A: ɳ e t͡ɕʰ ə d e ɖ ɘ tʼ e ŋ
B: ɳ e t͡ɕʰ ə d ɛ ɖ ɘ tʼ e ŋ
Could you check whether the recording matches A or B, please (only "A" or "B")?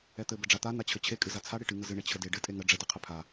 A